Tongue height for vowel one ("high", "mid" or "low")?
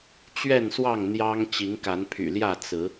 mid